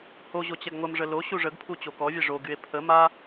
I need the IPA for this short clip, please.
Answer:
h o ʑ o t͡ɕ ɛ ɡ ŋʷ ə m ʐ ə l o ɕ u ʐ ə ɡ pʰ u t͡ɕ o k ɔ vʲ ɛ ʐ o ɡ y e̯ pʰ ə m a

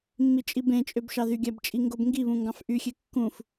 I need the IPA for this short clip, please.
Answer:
mː i t͡ʃʼ i b ẽ t͡ʃʼ ø b ʃ ɑ ð y ɡʲ æ b t͡ʃʼ i ŋ ɡ o b ŋ ɡ i β ũ ŋ ɡ ɑ̃ f ʔ y xʲ e kː ũ f

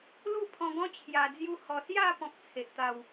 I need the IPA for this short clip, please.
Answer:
l u˥˧ pʰ ɔ̃˧ ɡ ɔ̃˦ t͡ɕʰ j a˧ d͡z j u˦ h ɔ˧ s j a˥˧ p ɔ̃˦ k̚ t͡sʰ e˨ ʔ t̪ a˥˧ w

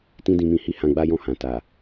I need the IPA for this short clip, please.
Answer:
t ĩ˦ d ĩ˧ m ĩ˧ h i˦ h ã˧ ɡ͡b a˦ j ɔ̃˦˨ h ã˨ t a˨

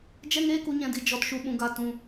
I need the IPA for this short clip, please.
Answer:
d͡ʒ ɛ˧ ŋ eː˧ k u˨ ɲ ɛ̃˨ d i˨ d͡ʒ ɔ˨ t ʃ u˨ ɓ ũ˨ ɡ a˨ t ũ˨

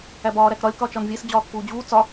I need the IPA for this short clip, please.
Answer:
æ b ɒː ɾ æ k ɾ ɒ lʲ k ɒ t͡ʃ ɒ n vʲ e s d͡ʑ ɒː k p uː d͡ʑ uː t͡s ɒ

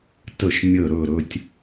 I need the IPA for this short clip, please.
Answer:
t ə˥˧ ʃ mʲ ə˥˧ ɾ ɵ˥˧ ɾ ɵ˥ tʲ

